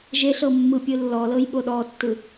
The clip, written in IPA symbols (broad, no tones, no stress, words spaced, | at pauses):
ʒeɬɤmːɯpʲɯ lːɔlɤjɓo ɗɔtːɯ